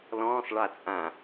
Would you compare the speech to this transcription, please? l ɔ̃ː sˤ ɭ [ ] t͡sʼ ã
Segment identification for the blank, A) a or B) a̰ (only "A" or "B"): A